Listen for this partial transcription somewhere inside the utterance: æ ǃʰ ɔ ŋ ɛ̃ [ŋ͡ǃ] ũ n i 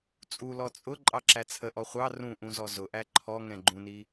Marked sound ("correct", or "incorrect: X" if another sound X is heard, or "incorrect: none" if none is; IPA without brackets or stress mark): incorrect: ɡ͡ǃ